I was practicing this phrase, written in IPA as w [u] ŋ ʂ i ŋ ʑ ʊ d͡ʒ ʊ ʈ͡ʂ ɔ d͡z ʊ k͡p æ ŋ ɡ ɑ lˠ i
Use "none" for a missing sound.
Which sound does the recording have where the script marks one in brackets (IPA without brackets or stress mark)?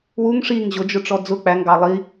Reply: u